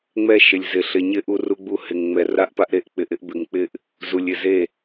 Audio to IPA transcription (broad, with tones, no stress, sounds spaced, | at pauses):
ŋ͡m ɛ˦ ʃ ɪ˨ lʲ z ɪ˨ ɬ ɪ˨ ɲ ɪ˦ ʔ u˦ r u˦ ɡ͡b u˦ h ɪ˨ ŋ ŋ͡m ɛ˨ r a˦ ʔ p a˦ ʔ ɾ e˦ ʔ k͡p ɪ˨ ʔ ɪ˦ ʔ b ɪ˨ ŋ k͡p ɪ˦ ʔ | z u˨ lʲ ɪ˨ z e˦˨